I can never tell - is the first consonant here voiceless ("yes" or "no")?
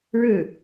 no